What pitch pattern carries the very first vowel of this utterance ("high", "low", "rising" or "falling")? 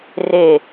falling